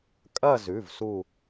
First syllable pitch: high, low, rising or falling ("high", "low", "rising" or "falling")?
falling